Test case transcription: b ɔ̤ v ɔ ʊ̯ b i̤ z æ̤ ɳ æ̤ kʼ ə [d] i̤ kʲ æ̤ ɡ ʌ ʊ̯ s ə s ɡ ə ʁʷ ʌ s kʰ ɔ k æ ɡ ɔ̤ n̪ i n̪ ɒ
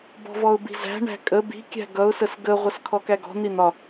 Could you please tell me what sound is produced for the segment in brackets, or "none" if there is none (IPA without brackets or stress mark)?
b